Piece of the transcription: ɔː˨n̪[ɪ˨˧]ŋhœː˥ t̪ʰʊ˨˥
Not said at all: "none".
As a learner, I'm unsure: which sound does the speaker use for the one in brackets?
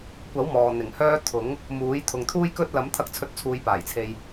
ɪ˨˩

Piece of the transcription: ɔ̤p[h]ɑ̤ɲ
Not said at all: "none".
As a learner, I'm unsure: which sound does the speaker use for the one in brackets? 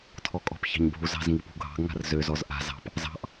ç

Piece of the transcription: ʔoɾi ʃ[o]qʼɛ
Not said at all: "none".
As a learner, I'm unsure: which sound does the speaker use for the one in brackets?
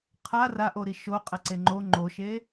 o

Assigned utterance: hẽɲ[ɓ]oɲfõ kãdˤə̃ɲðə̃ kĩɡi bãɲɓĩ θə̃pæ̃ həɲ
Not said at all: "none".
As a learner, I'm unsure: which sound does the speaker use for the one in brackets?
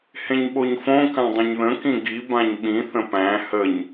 ɓ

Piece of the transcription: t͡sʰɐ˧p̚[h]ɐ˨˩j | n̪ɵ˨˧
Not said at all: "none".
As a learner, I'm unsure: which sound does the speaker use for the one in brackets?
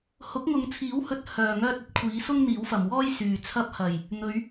h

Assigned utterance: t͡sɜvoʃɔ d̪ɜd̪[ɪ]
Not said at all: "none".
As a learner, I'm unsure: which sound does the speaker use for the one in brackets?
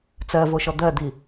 i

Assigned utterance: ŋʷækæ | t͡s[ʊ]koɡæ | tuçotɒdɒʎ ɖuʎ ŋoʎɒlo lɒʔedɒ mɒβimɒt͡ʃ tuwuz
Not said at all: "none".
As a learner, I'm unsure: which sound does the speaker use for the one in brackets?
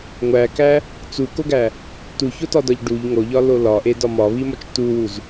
u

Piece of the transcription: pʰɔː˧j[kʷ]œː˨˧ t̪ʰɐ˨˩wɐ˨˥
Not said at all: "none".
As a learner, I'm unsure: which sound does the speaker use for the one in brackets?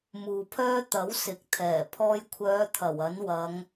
kʷʰ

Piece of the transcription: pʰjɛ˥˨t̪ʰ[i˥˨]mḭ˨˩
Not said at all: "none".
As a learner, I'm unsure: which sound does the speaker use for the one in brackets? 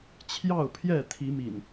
i˨˦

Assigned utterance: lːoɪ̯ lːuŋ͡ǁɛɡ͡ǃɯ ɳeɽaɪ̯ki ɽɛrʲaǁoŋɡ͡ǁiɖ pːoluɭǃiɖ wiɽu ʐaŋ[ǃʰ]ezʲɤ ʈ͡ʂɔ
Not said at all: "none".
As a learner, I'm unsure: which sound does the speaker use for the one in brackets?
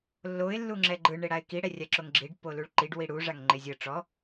ŋ͡ǃ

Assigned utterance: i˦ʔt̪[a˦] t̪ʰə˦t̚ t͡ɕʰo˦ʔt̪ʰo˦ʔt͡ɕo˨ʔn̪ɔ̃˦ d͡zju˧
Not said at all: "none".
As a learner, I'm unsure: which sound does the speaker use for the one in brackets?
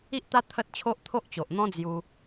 a˦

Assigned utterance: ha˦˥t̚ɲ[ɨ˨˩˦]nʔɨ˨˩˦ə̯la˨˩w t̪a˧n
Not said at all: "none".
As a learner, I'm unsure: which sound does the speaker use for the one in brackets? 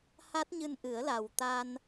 ɨ˧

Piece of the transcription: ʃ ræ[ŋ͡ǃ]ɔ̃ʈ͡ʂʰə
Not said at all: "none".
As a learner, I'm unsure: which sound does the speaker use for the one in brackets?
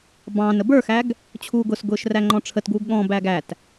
ŋ͡ǃ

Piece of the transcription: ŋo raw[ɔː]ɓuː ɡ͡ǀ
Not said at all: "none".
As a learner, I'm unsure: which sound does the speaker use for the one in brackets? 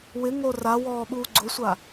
ɔː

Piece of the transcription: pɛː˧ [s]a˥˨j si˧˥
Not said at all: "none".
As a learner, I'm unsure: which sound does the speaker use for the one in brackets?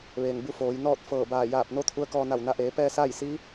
s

